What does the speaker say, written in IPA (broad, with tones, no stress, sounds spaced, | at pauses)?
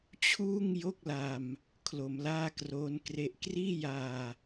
t͡ɕʰ uː˥˩ ŋ j o˥˩ k̚ l a˧ m | kʰ l o˩˦ m l aː˥˩ k r oː˦˥ n k r e˦˥ ʔ k r iː˥˩ j aː˧